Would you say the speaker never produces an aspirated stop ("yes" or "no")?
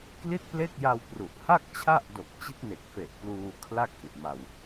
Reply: no